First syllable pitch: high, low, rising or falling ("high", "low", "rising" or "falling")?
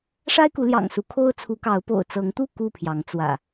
high